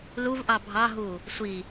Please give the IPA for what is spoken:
l u v ʔ ɑ bʱ ɑ ɦ u | sʷ i

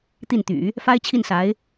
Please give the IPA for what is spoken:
t̪ i˥˩ n t̪ y̰˨˩˦ | f a˥ ɪ̯ t͡ɕʰ i˥˩ n s a˧˥ ɪ̯

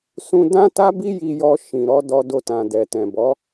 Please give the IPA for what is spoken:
s ũ˧ d ã˦ t a˦ b i˦ j i˧ j ɔ˧ ʃ ĩ˨ ɾ ɔ˨˦ d ɔ˧ d o˧ t ã˨ d ɛ˨ t ɛ̃˨ b ɔ˨˦

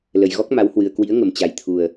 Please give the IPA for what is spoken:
l ə˨˩ j ɣ ɔ˦˥ k̚ m a˨˦ w h w ɨ˨˩ ə̯ k w ḭ˧˥ ə̯ ŋ ə˨˩ m t͡ɕ a˨˩ j t̪ʰ u˨˩ ə̯

